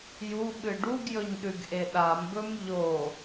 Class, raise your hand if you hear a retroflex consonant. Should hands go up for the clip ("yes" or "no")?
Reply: yes